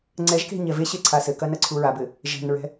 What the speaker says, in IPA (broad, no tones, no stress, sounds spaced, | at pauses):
ŋ͡ǀ ɛ ʒ k e̤ ɲ ɛ v e ɕ e ǀʰ a s ɘ k ɐ n ɐ ǀʰ u ɹ a b ɘ | ʒ ɛ̤ n ɹ ɛ̤